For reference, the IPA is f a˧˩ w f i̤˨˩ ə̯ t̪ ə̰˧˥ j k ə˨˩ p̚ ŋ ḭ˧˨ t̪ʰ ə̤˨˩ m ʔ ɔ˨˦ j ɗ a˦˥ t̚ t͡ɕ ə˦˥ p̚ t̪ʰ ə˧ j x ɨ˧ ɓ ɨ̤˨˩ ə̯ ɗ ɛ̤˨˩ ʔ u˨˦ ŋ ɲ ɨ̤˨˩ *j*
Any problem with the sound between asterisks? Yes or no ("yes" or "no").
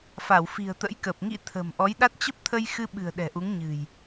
no